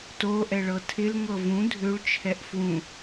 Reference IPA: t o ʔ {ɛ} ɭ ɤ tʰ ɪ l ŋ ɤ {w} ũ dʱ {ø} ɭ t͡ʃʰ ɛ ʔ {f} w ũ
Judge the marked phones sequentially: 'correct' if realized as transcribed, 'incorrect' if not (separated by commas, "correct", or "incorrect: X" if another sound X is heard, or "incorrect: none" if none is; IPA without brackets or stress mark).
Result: correct, incorrect: v, correct, correct